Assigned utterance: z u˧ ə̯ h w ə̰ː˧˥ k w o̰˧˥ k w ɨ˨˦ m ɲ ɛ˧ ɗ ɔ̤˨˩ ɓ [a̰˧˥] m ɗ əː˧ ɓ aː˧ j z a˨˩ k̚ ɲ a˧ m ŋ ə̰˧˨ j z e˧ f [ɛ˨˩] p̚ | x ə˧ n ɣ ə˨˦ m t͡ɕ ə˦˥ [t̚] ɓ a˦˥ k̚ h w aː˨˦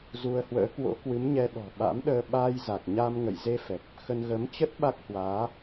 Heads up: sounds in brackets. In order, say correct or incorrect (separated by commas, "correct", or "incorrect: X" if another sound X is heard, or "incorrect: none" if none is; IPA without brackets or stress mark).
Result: correct, correct, correct